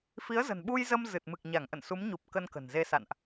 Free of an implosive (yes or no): no